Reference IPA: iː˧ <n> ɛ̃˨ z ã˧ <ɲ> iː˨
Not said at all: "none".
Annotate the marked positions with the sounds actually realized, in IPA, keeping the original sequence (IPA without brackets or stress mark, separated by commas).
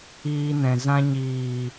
n, ɲ